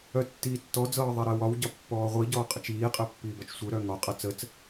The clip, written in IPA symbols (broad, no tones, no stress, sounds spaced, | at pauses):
œ tː iː tː ɔ d͡z ɤː ðˤ ɛ ɾ əː w ɒ w ɟ ɒ pː ɔː ʁʷ i ɟ ɔː qʼ ə t͡ʃ iː qʼ əː pː iː b ɒ t͡ʃ sʷ ə˞ ɾ œ ŋ ɒ qʼ ɤ t͡s ə t͡s